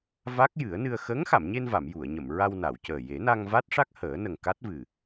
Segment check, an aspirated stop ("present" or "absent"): absent